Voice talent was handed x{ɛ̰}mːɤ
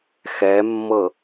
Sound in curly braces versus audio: incorrect: ɛ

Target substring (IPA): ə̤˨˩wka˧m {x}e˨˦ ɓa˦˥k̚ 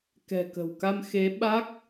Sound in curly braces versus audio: correct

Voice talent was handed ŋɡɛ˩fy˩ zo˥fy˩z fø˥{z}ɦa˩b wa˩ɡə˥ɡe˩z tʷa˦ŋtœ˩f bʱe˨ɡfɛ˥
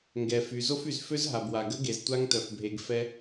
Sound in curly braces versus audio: correct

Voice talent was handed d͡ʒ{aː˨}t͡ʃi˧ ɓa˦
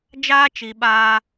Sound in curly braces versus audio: incorrect: aː˦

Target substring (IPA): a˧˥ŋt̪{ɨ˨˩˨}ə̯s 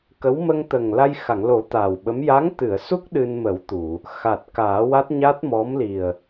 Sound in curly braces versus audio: correct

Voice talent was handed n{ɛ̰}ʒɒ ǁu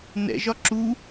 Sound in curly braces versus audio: correct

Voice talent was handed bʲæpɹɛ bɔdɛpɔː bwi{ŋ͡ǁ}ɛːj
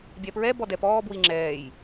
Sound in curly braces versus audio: correct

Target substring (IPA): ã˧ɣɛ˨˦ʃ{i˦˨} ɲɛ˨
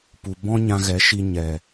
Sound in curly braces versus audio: incorrect: i˧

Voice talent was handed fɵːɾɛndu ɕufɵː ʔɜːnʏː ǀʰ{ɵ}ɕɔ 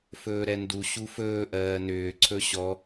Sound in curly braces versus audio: correct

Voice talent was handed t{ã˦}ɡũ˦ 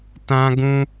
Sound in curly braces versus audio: correct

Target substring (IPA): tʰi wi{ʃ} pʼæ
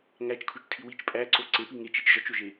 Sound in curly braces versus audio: incorrect: t͡ʃ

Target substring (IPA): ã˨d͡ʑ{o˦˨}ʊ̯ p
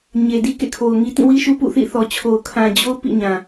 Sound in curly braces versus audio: incorrect: o˦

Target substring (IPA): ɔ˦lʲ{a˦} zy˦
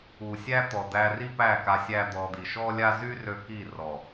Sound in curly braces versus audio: correct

